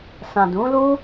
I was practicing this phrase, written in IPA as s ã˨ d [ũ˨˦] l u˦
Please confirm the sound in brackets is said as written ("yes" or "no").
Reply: yes